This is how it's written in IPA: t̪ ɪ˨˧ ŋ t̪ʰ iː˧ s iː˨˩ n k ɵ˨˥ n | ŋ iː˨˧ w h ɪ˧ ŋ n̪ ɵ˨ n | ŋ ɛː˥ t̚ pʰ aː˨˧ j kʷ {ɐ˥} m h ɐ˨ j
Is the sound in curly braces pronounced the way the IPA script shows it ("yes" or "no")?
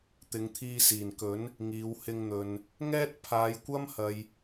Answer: yes